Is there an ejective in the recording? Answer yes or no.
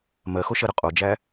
yes